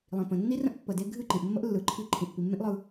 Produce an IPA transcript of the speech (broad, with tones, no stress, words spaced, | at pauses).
lˠĩ˨pə̃˨ nːi˦rə̃˦ʔ pːə˨de˦ ɡʱɨ˦˨ǃĩ˨ʔmːə˦ʔ lːɯ˨ǃʰi˦ǃʰĩ˨ʔ pi˨mːẽ˦ʔlˠɯ˨